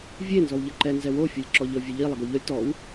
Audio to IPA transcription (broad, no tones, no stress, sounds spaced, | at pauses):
vʲ e n z ɔ w ʎ ə ǃ ɛ n z ɛ w o fʲ o lʲ ǁ ɔ ʎ ɤ vʲ e ʎ i lˠ ɛ ɡ o ʎ ɔ lʲ t ɔ w